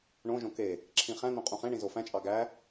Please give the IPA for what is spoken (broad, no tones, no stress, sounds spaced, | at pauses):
ɳ õ ʒ õ k e | ǁʰ ĩ χ æ̃ n̪ õ qʼ ũ χ ẽ ɳ ĩ z o f æ̃ t͡ʃʼ ɑ ɡ æ